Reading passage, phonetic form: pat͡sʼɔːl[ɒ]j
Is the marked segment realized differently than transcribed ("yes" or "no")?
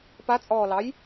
yes